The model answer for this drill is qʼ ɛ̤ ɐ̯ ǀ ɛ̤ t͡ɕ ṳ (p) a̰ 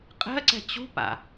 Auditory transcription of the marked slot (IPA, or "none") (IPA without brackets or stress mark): p